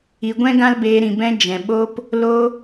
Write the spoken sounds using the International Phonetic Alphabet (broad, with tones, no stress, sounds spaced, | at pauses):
i˨ ɡʷ ɛ̃˦ ɡ ã˦ l b eː˧ ɾ ĩ˨ b ɛ̃˧ d͡ʒ ɛ̃˨ ɓ o˧ p | l o˧